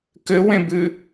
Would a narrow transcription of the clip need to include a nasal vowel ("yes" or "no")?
yes